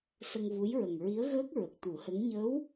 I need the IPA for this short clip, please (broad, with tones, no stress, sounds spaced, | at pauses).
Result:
s ə˧ ŋ v u˧˥ j ɹ ə˨˩ ŋ ɹ i˧˥ ə̯ ɣ əː˦˥ k̚ ɹ ə˨˩ k̚ t̪ u˨˩˦ h ə˧˥ ŋ ɲ ə˧˥ w